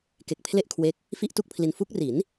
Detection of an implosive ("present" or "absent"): absent